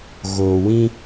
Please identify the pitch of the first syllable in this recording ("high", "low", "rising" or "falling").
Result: low